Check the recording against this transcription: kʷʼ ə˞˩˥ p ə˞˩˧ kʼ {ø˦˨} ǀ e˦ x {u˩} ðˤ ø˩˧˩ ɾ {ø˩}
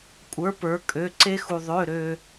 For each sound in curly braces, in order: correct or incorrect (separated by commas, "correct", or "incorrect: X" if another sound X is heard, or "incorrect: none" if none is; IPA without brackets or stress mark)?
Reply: incorrect: ø˩˧˩, correct, correct